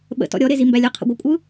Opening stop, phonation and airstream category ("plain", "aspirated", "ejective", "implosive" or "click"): implosive